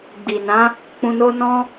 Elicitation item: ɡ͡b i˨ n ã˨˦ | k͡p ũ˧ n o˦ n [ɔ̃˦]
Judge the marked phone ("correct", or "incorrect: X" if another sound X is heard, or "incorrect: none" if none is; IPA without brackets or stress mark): correct